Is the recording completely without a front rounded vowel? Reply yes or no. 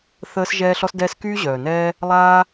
no